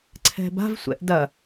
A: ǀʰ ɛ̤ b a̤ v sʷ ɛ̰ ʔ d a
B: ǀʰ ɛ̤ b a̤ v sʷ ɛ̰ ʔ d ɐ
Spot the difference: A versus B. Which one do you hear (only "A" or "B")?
B